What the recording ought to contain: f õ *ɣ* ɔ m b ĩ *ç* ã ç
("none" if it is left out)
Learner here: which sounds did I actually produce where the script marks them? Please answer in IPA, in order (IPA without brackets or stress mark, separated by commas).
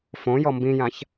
j, j